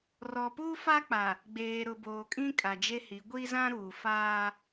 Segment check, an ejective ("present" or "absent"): present